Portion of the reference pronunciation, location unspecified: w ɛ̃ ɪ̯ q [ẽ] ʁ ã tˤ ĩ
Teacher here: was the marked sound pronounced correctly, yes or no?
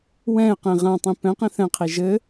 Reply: yes